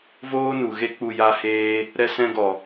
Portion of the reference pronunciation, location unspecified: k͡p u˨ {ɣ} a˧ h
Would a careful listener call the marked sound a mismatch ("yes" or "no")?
yes